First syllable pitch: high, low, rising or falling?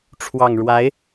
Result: low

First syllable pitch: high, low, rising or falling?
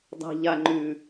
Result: high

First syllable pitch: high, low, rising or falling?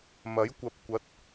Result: rising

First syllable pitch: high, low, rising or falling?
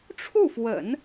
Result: falling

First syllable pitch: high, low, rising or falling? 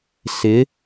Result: rising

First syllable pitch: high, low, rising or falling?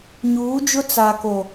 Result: rising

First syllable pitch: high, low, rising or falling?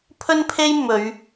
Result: high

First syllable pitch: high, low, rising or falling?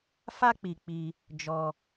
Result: high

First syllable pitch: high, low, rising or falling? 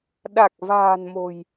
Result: low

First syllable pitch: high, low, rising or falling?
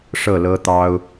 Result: falling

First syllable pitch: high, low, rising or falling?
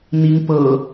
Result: rising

